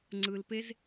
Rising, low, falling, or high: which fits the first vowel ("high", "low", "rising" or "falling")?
low